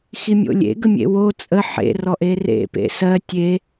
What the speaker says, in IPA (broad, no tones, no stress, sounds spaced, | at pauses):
x i mʲ o̰ lʲ ḛ ɡ ə mʲ ḛ w o t͡sʼ ə ħ ḛ r ɔ ʔ e r ḛ p ḛ s ɜ tʲ e